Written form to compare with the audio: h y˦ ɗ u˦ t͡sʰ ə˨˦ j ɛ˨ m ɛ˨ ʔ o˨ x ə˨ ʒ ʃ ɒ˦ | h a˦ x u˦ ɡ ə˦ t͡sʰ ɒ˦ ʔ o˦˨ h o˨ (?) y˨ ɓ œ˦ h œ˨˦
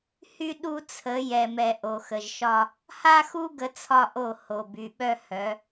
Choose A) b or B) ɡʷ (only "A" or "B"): A